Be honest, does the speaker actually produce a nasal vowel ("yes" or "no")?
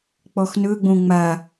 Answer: yes